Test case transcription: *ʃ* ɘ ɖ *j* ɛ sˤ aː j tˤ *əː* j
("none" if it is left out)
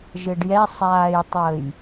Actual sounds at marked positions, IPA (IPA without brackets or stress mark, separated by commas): ʒ, j, əː